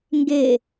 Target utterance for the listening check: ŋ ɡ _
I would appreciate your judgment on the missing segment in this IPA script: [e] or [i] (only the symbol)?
e